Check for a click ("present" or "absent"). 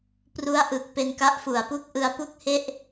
absent